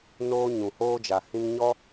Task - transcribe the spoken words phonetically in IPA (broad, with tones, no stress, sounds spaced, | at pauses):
n oː˧ ɲ ũ˨ h oː˧ d͡ʒ a˨ h ĩ˧ ŋ ɲ ɔ˦